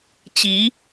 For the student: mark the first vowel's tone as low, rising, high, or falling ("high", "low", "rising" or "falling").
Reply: rising